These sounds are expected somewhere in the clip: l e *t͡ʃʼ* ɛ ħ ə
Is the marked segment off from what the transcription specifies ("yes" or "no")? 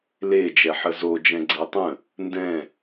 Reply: yes